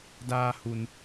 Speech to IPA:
daː˧ hu˧n

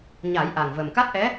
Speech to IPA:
ɲa˨˩˦j ʔa˨˩ŋvə˨˩m ka˦˥t̚ʔɛ˧˥

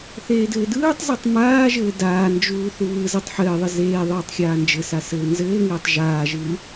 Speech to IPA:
θeːdɘːdɯːtˤzetˤ maːʒɘː daːnd͡ʒuː θuβɯzetˤ ħɘːðˤɘ zeː ðˤɯːtˤxʲaːnd͡ʒɘsa sɘːnzɘːŋɘːtˤ ʒaːʒɯː

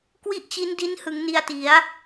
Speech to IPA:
kwi˥˩ʔt͡ɕi˦˥ndi˦˥nhɯ˩˦ŋ ni˧a̯ti˩˦a̯

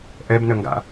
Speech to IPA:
ʔɛbnəŋɡa̰

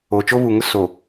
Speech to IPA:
oː˨t͡ʃo˦βu˨ŋʊ˦ so˨

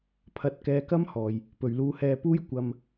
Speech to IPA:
pʰɐ˧t̚kɛː˧kɐ˥mhɔː˨j | pɵ˨ɥluː˧hɛː˧puː˥j kʷɐ˧m

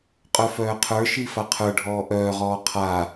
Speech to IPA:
qʼœfœːqʰə˞ʃi faqʰə˞ɖʱɔː ʔœːʁɔː qʰa

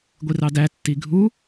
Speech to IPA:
ɡʷirɑdæ tːiɡʱu

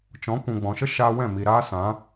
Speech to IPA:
t͡ʃɔ̃˨˦ kʷũ˨ɡ͡bɔ̃˨ʃə˦ ʃaː˧wɛ̃˦˨mi˨ ɾaː˦sã˨˦

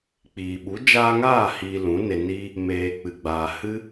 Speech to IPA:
k͡piː˨ɓu˨˦ d͡ʒaː˧ŋaː˦˨ hiː˧lũ˨˦ne˧ niː˧ | meː˨ k͡pɨ˨ɡ͡baː˨ hɨ˧

